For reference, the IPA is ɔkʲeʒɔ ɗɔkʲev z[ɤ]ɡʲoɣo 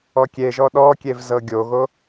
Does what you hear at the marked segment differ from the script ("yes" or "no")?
no